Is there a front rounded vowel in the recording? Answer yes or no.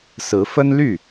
yes